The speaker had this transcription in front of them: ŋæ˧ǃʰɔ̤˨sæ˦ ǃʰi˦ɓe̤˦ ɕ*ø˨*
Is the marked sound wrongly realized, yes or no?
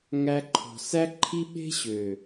no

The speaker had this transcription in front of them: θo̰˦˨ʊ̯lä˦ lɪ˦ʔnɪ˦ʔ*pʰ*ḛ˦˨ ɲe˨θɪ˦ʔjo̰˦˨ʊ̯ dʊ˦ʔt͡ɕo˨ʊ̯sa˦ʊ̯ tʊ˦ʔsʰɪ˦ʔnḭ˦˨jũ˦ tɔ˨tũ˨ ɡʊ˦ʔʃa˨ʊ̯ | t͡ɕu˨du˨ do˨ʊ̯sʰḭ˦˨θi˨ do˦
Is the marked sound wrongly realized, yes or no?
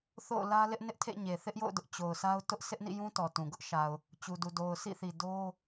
yes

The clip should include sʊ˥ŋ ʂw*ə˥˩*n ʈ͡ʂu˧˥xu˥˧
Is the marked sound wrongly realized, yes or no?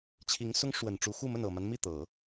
yes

